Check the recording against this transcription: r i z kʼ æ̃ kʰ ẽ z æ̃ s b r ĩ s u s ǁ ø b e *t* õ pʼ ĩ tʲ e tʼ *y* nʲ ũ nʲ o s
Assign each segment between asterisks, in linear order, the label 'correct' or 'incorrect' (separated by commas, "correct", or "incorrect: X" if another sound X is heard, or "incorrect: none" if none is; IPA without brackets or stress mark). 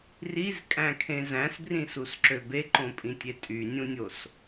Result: incorrect: ǃ, correct